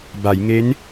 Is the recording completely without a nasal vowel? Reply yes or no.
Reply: yes